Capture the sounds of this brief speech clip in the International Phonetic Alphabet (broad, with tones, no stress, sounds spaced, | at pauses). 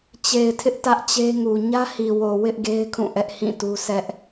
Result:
t͡ɕ e˨ ɪ̯ tʰ ɪ˦ ʔ t ä˦ ʔ t͡ɕ e˦ ŋ u˨ ɲ ä˦ h i˨ w o˨ w ɪ˦ ʔ ɡ e˦ ɪ̯ kʰ ũ˦˨ ʔ ɛ˦ ʔ h ĩ˦˨ t u˦ s ɛ˦ ʔ